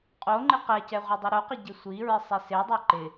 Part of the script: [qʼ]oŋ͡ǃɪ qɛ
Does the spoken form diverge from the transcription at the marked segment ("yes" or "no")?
no